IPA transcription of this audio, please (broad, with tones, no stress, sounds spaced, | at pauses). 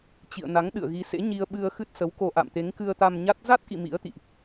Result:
t͡ɕ ḭ˧˨ ə̯ n a˨˦ ŋ ɗ ɨ̰˧˨ ə̯ ɣ i˨˦ s ḛ˧˥ ɲ i˧ ə̯ ɓ ɨ˧ ə̯ x ɨ˦˥ t̚ s ə˨˦ w k o˧ ʔ a̰˧˨ m t̪ e˨˦ ŋ k ɨ˧ ə̯ t̪ a˧ m ɲ a˦˥ t̚ z a˦˥ t̚ ʔ ḭ˧˨ m ḭ˧˥ ə̯ t̪ ḭ˧˨ ʔ